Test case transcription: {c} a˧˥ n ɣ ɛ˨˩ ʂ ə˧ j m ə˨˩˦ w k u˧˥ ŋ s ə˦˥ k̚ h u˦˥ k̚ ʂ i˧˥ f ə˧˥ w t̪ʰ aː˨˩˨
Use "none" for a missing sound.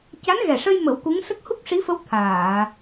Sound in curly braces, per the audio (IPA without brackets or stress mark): c